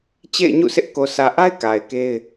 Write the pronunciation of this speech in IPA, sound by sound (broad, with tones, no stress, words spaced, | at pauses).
t͡ɕḛ˦˨ɪ̯ɲṵ˦˨sʰɪ˦ʔ ko˨sʰä˨ʔa˦ɪ̯ ka˨ɪ̯ke˦ɪ̯